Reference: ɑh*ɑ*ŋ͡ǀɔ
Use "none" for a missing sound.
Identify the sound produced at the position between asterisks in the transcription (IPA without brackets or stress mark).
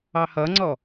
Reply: ʌ